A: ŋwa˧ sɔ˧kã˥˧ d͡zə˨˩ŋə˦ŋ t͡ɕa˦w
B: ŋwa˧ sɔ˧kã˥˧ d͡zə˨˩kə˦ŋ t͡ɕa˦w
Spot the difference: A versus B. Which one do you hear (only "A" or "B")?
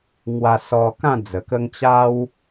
B